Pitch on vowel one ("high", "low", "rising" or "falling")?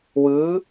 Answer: rising